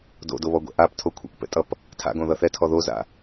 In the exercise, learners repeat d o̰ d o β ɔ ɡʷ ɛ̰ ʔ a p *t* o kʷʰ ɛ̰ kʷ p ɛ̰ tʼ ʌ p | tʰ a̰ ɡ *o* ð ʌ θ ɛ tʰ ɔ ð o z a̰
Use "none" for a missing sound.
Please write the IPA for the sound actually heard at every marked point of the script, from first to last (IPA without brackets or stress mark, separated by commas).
tʰ, õ